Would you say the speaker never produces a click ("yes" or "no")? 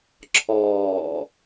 no